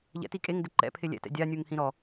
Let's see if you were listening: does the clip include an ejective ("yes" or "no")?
yes